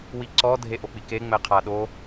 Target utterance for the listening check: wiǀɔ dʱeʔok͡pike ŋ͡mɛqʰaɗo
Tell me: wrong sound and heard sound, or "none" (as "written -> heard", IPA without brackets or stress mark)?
none